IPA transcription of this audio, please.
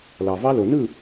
l ɑ˨ v ɑ˦ l o˨ n ɯ˦˨

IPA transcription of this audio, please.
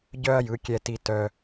ɟ œ˥ ɐ̯ j ɯ˩˥ kʲ ɛ˧ t i˧ t œ˧

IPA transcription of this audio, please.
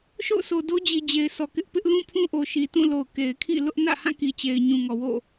ʃ o̰˦˨ ʊ̯ s o˨ d o˦ d͡ʑ i˨ d͡ʑ e˨ ɪ̯ s ɔ˨ k ɪ˦ ʔ p ɪ˦ ʔ l ũ˦ pʰ ũ˦ ʔ o˨ ʃ i˨ t ũ˦˨ l o˨ ʊ̯ k e˨ ɪ̯ kʰ ḭ˦˨ l ʊ˦ ʔ n ä̰˦˨ h ã˦˨ k i˨ t͡ɕ e˨ ɪ̯ ɲ ũ˨ ŋ ɔ˨ w o̰˦˨

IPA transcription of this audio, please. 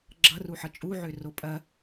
ɡ͡ǁ ʌ r u ħ ʌ t͡ʃʼ u ʕ ø r o pʼ ɐ

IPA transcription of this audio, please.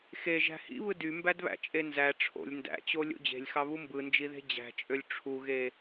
x e ʒ æ̤ h ḭ β ɯ d y m b æ d β æ̰ t͡ʃʼ e n z æ ʈ͡ʂʰ o̰ lʲ n d æ̰ t͡ɕ o lʲ o̰ d͡ʑ e̤ lʲ x ɑ β u m b ɯ n d͡ʒ i ð e̤ d͡ʑ æ̤ t͡ʃʼ ø lʲ ʈ͡ʂʰ u ɣ e

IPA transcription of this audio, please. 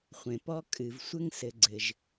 χʷ ẽ˩ p ɔ˦ kʼ ɨ˨ v sʷ ɘ˦ ŋ s ɘ˨ ɡ͡ǀ ɘ˩ ʒ

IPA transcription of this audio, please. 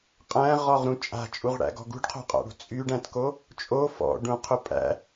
qʼ æ̃ ʁ ɔ ʁ ɾ ũ t͡ʃʼ a̤ t͡ʃʼ u ʁ ɽ æ̰ ɡ ɔ̤ ɡ ṳ ɖ qʰ o̤ qʼ a̰ ɽ ṳ t͡sʼ y ɖ æ̃ t k o | t͡ʃʼ o f ɔ̰ ɖ ũ qʰ ʊ pʼ æ̰

